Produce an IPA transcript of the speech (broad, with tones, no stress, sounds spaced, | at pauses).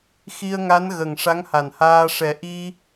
x i˧ ə̯ ŋ a˧˥ n ɣ ə˨˩ ŋ ʂ a˧˥ ŋ h a˨˩ n h aː˧ ʂ ɛ˨˩ ʔ i˧